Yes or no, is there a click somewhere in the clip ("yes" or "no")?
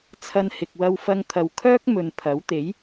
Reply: no